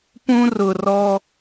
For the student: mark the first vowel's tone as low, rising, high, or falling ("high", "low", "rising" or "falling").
high